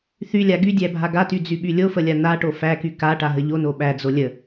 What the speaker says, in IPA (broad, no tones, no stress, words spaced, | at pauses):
θylʲa ɡy dʲæbʱaɡaty d͡zyɓylʲofə lʲanaʈo fæky kaʈa ɦəʎono ɓæd͡zo lʲə